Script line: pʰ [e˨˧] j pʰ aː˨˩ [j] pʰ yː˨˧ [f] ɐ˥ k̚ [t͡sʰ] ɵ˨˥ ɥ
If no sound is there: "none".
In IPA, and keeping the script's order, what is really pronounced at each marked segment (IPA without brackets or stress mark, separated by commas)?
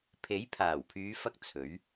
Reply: e˨˥, w, f, t͡sʰ